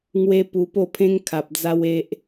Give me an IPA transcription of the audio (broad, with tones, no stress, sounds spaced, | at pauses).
ŋ w e˧ p u˧ p o˥˧ pʰ ẽ˦ ŋ kʰ a˨ p̚ d͡z a˦ w e˦ ʔ